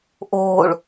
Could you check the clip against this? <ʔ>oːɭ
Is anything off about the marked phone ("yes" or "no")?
no